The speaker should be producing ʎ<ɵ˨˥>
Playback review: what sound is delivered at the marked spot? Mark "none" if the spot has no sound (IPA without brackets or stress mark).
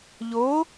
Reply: o˨˥